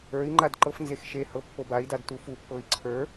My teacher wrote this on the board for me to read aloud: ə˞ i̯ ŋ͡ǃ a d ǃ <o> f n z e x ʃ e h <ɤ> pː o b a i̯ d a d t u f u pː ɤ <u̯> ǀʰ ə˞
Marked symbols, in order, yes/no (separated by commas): no, yes, no